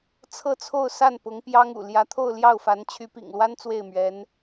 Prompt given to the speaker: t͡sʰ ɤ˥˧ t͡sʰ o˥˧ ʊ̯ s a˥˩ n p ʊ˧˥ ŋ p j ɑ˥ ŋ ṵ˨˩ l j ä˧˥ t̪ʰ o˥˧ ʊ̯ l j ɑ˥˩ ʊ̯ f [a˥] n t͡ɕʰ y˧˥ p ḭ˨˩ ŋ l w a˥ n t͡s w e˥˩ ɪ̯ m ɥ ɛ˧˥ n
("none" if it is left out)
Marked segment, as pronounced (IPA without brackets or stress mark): a˧˥